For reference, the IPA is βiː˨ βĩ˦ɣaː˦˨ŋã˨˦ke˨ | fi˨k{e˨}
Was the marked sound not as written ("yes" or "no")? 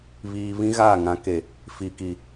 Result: yes